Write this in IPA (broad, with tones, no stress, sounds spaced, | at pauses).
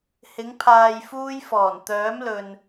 h ɪ˨˥ ŋ pʰ aː˧ j f uː˥ j f ɔː˨˩ n t̪ œː˨˥ m l ɵ˨ n